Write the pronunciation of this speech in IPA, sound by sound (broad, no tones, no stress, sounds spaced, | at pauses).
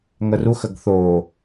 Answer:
ŋ ə r u x ə ɡ θ o